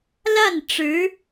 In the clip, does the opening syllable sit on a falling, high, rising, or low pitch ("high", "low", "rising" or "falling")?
falling